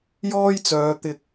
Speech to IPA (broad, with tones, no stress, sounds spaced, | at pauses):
j ɔː˥ j t͡s œː˨˧ t̪ ɪ˧ k̚